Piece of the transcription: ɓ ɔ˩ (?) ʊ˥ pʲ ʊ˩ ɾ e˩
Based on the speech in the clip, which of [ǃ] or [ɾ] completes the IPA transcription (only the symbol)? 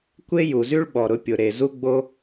ɾ